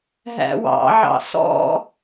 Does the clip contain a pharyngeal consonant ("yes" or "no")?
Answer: yes